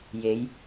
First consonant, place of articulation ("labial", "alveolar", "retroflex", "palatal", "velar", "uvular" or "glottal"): palatal